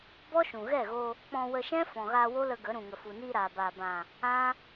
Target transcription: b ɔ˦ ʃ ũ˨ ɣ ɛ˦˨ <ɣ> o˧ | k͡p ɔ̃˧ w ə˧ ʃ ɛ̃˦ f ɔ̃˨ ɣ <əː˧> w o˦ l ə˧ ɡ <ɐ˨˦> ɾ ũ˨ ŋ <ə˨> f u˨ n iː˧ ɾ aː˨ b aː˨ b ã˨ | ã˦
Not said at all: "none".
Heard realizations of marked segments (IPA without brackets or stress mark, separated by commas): ɣ, aː˧, ə˨˦, ə˨